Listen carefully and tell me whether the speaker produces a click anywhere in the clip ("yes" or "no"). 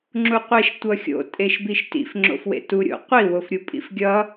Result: yes